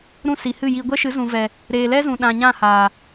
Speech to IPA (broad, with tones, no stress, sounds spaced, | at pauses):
ɾ ũ˦˨ s i˨ h ɨ˦˨ j i˧ ɡʷ ɛ˦ ʃ ɨ˨˦ z ũ˨ v ɛ˨ | ɾ eː˨ l ɛ˦ z ũ˨ ɗ ã˨ ɲ ã˦˨ h a˨